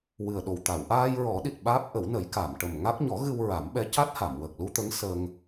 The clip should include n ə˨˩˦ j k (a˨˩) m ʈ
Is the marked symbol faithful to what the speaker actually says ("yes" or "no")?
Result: no